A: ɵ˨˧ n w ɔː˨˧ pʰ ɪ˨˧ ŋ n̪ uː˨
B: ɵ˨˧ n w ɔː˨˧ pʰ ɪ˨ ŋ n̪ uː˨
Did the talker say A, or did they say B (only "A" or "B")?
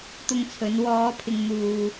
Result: B